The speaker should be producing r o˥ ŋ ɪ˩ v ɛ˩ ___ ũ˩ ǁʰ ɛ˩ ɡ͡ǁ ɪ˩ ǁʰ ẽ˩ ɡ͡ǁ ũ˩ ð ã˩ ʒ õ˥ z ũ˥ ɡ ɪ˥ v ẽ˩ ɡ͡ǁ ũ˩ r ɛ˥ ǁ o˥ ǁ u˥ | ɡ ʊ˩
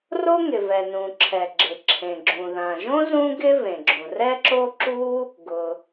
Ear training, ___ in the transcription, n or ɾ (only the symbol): n